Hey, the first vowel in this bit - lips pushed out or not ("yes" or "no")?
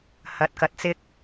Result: no